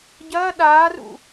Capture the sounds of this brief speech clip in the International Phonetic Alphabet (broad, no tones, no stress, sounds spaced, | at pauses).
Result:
ɟ ɐː ɗ aː r ṵ